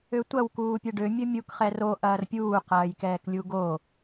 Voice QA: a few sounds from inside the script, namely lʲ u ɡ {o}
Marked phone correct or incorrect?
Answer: correct